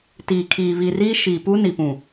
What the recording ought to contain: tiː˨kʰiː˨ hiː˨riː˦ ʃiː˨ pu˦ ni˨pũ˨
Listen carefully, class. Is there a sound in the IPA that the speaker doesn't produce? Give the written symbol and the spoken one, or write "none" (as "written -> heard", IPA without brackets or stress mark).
h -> β